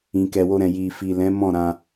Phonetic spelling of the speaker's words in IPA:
ĩ˨ k ɛ˨ w o˧ ɾ ɛ̃˨ j i˨ f i˨ l ɛ̃˨˦ m ɔ̃˦˨ ɾ ã˧

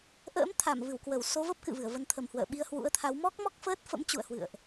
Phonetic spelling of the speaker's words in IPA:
ʔ ə̰ː˧˥ m t̪ʰ a˧˩ m v ɨ˧˩ w k w ə˧˩ w s o˨˦ v ə˦˥ p̚ k ɨ̰˧˨ v ɨ˧˩ ə̯ v ə˧ n t̪ʰ ə˧˩ m h w ə̰ː˧˨ ɓ i˧ ə̯ h w ṵ˧˥ ə̯ t̪ʰ a˨˦ w m ɔ˦˥ k̚ m ɔ˦˥ k̚ f əː˦˥ t̚ f ə̰˧˥ m t͡ɕ ṵ˧˨ ə̯ h w ɨ̰˧˨ ə̯ ʔ

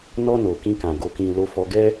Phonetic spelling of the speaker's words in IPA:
n ɔ˧ n o˨ k ĩ˧ k ã˨ ɡ o˨ k ĩ˨ l o˧ f ɔ˧ ɡ ɛ˦

